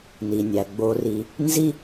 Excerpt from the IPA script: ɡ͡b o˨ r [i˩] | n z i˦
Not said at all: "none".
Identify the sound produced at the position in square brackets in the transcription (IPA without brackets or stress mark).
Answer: i˨